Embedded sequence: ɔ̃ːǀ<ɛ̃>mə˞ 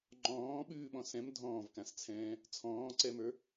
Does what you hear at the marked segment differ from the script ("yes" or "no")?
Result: yes